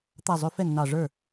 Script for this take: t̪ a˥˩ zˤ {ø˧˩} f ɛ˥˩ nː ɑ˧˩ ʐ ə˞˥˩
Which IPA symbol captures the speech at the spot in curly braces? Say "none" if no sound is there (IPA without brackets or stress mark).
ø˦˥